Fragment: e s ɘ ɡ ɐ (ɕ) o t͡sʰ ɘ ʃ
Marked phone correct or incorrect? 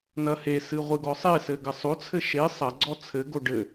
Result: incorrect: sˤ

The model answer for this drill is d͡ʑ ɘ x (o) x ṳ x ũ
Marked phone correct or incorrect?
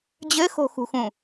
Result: incorrect: o̤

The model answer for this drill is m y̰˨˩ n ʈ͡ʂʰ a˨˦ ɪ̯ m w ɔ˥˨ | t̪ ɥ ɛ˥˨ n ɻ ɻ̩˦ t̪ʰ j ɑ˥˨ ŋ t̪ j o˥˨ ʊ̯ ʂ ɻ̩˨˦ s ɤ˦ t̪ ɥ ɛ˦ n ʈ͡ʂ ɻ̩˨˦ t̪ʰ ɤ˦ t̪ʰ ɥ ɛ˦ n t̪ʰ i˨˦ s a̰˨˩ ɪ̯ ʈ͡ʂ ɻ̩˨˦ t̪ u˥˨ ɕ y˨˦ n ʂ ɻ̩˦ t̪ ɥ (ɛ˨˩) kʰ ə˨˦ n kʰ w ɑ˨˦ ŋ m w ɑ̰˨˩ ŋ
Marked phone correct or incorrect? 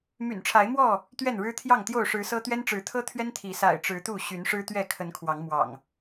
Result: incorrect: ɛ˥˨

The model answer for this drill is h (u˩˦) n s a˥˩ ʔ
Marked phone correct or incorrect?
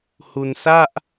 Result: incorrect: u˧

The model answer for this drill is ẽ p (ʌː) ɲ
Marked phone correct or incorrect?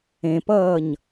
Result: correct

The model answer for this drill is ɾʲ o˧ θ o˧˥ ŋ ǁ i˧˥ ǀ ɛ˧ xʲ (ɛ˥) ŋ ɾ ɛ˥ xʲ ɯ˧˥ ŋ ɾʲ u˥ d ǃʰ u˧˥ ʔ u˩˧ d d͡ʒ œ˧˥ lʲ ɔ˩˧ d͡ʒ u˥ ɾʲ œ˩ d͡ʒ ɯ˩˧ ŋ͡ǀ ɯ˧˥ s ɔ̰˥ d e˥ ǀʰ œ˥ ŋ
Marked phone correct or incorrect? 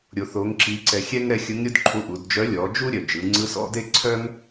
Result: correct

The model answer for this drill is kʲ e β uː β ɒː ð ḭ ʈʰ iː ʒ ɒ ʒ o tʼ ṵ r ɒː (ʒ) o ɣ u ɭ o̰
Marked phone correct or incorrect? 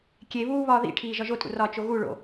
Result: incorrect: t͡ʃ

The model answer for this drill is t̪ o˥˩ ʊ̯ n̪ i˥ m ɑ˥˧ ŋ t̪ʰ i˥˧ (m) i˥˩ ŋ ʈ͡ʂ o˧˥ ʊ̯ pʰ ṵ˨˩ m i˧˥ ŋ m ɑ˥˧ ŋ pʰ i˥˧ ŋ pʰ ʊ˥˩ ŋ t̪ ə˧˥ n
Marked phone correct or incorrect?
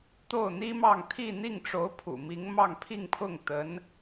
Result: incorrect: n̪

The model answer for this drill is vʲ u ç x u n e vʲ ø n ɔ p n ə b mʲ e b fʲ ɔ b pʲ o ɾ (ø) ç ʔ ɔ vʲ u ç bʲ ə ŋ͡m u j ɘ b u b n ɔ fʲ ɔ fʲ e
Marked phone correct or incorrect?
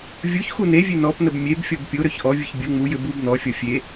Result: correct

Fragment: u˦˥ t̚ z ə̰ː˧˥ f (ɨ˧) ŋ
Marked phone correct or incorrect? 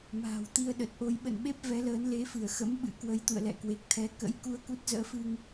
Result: correct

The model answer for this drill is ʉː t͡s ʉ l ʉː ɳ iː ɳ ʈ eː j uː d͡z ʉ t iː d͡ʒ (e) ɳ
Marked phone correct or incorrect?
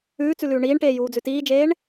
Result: incorrect: eː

